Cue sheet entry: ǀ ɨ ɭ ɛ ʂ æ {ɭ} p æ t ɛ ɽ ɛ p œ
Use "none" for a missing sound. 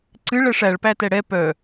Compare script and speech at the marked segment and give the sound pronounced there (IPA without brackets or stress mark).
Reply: ɭ